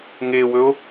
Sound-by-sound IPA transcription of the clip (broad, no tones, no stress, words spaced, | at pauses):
ŋewɵo̯